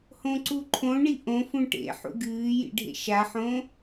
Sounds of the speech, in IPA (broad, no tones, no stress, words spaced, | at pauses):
hõǀuǃʰõɳi ʔõfũ ʈḛħṵ ɡɨːjḭ ɖʱḛʃaħõ